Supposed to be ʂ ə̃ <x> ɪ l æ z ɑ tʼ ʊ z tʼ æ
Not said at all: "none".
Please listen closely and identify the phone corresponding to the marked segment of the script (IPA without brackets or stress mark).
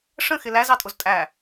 x